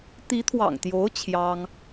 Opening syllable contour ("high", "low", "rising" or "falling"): rising